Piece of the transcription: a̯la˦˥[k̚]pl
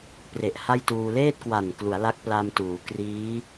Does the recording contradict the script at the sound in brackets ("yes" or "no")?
no